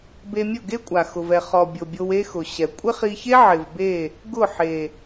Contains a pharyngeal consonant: yes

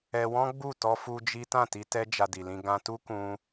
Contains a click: no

